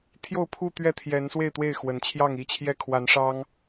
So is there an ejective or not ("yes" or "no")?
no